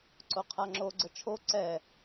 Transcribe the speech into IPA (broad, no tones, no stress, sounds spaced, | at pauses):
ǀ o qʰ a ŋ͡ǁ o ɡ͡ǀ ɤ t͡ʃʰ o ǀ ɛ